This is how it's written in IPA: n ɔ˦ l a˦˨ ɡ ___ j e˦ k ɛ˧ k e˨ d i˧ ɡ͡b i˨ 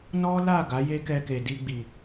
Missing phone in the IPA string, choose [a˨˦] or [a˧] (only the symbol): a˨˦